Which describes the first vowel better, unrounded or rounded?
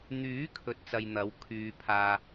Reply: rounded